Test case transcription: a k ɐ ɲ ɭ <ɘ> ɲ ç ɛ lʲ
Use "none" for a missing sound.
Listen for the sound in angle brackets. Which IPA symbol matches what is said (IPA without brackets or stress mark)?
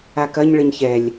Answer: ɘ